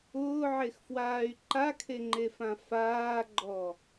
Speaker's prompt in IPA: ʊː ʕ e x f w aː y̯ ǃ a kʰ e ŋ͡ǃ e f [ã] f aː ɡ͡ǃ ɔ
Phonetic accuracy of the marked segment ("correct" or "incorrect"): correct